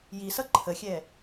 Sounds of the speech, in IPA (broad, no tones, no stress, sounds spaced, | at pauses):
j i s ʌ ǃʰ ə xʲ ɛ